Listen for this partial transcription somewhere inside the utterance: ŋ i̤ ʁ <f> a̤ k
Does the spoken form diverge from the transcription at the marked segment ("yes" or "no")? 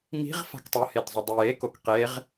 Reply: no